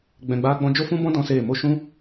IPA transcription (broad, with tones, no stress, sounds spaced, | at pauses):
ɡ͡b ɛ̃˧ ɡ͡b aː˦ ɡ͡b ɔ̃˦ d͡ʒ o˦ f ũ˦ b ɔ̃˦ d ɔ̃˦ s eː˦˨ m o˧ ʃ ũ˦